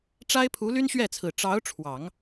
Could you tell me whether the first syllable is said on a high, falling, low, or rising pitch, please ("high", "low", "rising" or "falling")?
high